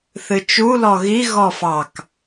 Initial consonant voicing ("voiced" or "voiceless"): voiceless